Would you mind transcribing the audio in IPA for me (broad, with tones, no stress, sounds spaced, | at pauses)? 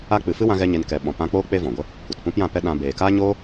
a˦ k͡p ɨ˨ f ɨ˦ w ã˦ ɣ ɛ˦ ɲ e˧ n k ɛ˨ ɓ ɔ̃˨ p ã˧ k͡p oː˦ k͡p e˦ v ɔ̃˨ ɡʷ ə˦ | kʷ ɛ˨ t p ũ˦ p j ã˦˨ p ɛ˦ ɗ ã˧ b eː˨ k a˦ ɲ oː˦